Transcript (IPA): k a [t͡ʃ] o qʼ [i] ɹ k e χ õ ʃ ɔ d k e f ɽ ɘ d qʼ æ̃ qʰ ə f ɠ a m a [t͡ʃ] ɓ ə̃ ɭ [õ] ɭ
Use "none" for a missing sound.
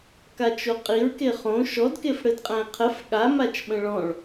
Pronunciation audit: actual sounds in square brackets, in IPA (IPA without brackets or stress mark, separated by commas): t͡ʃ, i, t͡ʃ, ɔ̃